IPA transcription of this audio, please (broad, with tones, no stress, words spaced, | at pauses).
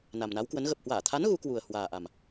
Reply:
na˨˩mna˨˦wkwə˨˦n ɣə˨˩p̚hwaː˧˩t̪ʰa˨˦n ɣu˨˦kwu˨˩ə̯ hwaː˨˩ʔa˨˩m